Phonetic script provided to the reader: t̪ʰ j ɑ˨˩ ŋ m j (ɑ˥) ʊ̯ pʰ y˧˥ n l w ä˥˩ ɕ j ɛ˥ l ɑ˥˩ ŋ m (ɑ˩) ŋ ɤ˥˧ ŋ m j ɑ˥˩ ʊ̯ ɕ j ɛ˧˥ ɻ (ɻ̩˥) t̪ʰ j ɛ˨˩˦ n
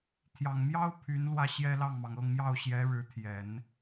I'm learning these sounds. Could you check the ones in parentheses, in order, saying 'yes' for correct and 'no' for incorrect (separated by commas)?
yes, yes, no